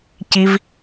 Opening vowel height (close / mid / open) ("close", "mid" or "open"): close